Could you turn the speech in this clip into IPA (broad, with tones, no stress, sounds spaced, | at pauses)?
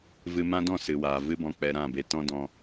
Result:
v ɨ˧ m ã˦ d ɔ̃˦˨ s ɨ˨ w aː˨ v ɨ˦ b ɔ̃˧ k͡p ɛ˧ ɾ ã˦˨ b e˧ t ɔ̃˦ d ɔ̃˧